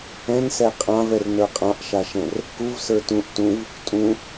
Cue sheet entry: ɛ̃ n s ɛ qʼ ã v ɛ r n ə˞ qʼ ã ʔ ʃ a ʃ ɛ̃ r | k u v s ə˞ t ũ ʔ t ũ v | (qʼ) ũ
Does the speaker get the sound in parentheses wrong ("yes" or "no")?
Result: yes